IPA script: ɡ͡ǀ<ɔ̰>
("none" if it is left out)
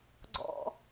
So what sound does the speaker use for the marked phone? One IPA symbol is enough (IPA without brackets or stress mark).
ɔ̰